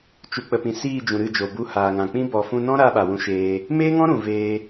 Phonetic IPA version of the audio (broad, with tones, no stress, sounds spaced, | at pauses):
t͡ʃ u˨ k͡p ə˨ p ĩ˨ s iː˦˨ d͡ʒ ũ˨ ɾ ɨ˦˨ d͡ʒ o˨ b u˧ h aː˨ ŋ ã˨ k͡p ĩ˦ b ɔ˨ f ũ˧ n ɔ̃˦ ɾ a˦ ɓ a˨ w ũ˧ ʃ eː˧ | m eː˦ ŋ ɔ̃˦ ɾ ũ˨ v eː˧